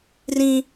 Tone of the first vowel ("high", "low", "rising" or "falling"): high